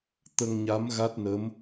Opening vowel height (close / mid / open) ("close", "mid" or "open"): mid